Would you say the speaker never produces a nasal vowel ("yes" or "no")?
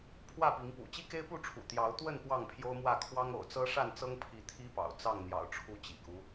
yes